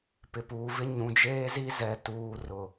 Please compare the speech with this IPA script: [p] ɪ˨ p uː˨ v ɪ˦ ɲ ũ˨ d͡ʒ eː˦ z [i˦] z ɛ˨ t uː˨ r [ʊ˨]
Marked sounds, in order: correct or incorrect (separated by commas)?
correct, correct, correct